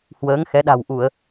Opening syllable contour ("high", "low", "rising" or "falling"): rising